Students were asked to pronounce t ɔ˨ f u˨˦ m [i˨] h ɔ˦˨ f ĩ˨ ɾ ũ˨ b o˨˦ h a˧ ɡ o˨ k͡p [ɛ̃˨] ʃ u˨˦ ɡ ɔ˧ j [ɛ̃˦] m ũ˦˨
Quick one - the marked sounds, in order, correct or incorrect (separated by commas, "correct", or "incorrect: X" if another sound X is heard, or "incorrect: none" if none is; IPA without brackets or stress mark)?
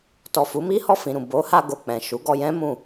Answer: incorrect: i˦, correct, correct